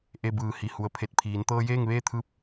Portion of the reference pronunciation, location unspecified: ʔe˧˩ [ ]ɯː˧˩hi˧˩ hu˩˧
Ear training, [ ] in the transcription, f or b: b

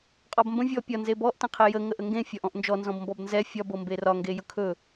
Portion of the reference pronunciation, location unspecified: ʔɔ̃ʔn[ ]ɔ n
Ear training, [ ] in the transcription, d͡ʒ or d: d͡ʒ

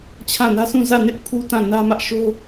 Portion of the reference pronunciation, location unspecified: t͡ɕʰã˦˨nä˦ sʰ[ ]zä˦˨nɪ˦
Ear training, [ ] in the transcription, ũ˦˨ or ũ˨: ũ˦˨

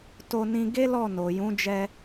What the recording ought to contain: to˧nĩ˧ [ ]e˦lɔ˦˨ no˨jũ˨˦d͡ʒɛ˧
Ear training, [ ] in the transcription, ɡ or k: ɡ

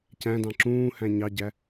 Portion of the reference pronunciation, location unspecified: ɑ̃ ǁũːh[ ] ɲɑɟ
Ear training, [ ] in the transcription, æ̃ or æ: æ̃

